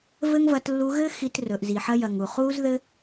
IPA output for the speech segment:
v ɘ˦ ŋ v ɐ˧ t lː u˧ ɣ ɘ˦ x i˧ t r ɵ˨ ʔ z i˨ ħ ɐ˧ j ɐ˨ ŋ u˨ χ u˦ z ð ɘ˦

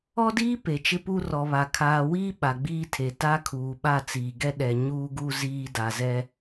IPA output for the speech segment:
ɔ˦ d iː˦ p e˨ t͡ʃ ɪ˦ p u˦ r ɔ˨ β a˨ kʰ aː˨ w iː˦ ɓ a˨ ɡ͡b iː˦ tʰ e˨ t a˦ kʰ uː˨ ɓ a˦˨ t͡s iː˨ ɡ ɛ˦ ɗ ɛ˨ ɲ uː˦ ɡ u˦ z iː˦ d a˨ z ɛ˦

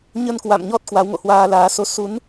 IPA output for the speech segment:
ɲ ə˧ n k w a̰˧˨ m ɲ ɔ˦˥ t̚ k w a˨˦ w ŋ o̰˧˨ h w aː˧ l aː˨˦ s o˧ s u˨˦ n

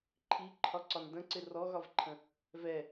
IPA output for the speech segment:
ǃʰ i ǃʰ ɒ ǀ ɒ n d ə̃ ǀ ɪ r ɔ ɣ ɒ v ǃʰ ə̃ | v ɛ

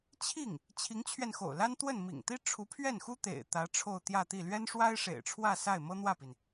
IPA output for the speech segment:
t͡ɕʰ i˥˩ ŋ | t͡ɕʰ i˧˥ ŋ t͡ɕʰ ɥ ɛ˧ n x o̰˨˩ ʊ̯ l a˥ n t̪ w ə˥˩ n m ḭ˨˩ ŋ t̪ i˥ ʈ͡ʂʰ u˧˥ pʰ ɥ ɛ˥˩ n x u˥ t̪ ḛ˨˩ ɪ̯ t̪ ä˧˥ ʈ͡ʂʰ o˥˧ ʊ̯ t̪ j ä˥˧ t̪ i˥˩ l ɥ ɛ˥ n ʂ w a˥ ɪ̯ ʂ ḛ˨˩ ɪ̯ ʈ͡ʂʰ w ä˥˧ s a˥˩ ɪ̯ m ɤ˥ n̪ w ä˥˩ p i˩ n

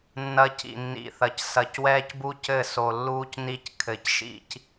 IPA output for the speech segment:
nː ɐ˦ c ḭ˨ nː ḭ˨ θ ɐ˨ c s ɐ˨ c w ɛː˦ c b u˦ c ɘ˦˨ s o˨ lː uː˦ c n i˦ c kʰ ɘ˨ c ʃ ḭ˦ c

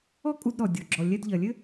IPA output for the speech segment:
ɔ˥ kʼ u˧ d ɾ ɔ˩ dʲ ɔ˩ ɡ͡ǁ ɔ˩ lʲ ɛ˧ d ʎ ɐ˩ lʲ ɘ˥

